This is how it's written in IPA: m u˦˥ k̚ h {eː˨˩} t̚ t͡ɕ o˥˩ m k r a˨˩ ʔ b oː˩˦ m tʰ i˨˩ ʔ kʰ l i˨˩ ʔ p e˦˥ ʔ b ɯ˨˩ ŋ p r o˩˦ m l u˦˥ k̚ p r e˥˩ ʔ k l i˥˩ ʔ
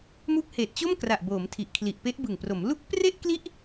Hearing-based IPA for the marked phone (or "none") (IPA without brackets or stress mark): eː˨˩